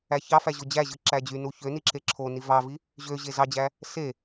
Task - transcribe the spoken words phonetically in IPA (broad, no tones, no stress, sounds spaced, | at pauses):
æ ç ɑ f æ ʑ o d͡ʑ æ ʑ ɯ ǁ æ d͡ʑ y n u ç ø n i ǁ e ǁʰ o n i v ɑ v i | ʑ ø ʑ e z ɑ d͡ʑ æ | s e